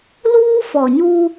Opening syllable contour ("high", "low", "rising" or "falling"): high